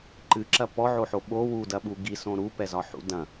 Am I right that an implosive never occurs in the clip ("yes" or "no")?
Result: no